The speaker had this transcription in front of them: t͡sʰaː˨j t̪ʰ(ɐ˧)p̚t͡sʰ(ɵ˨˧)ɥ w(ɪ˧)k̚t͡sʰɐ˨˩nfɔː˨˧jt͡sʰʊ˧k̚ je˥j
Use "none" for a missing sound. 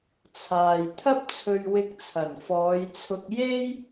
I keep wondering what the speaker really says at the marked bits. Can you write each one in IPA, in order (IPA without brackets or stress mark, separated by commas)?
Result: ɐ˥, ɵ˧, ɪ˧